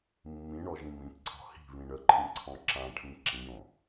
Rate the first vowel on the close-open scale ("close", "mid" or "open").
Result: close